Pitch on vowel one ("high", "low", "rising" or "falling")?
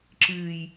low